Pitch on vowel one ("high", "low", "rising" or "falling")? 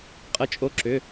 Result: rising